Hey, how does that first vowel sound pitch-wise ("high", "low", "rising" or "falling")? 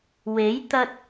rising